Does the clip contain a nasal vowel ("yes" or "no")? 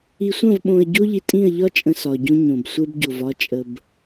yes